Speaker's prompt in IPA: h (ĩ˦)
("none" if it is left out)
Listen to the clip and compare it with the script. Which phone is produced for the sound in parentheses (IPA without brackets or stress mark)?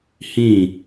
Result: ĩ˦˨